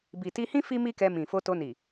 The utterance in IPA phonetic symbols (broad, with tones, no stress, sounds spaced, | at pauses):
b i˨ t i˧ h ĩ˦ f i˦ m i˦ k ɛ˧ m ĩ˨ f o˧ t o˧ n i˨